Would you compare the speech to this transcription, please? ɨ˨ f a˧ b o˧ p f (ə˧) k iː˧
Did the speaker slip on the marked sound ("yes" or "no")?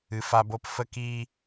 no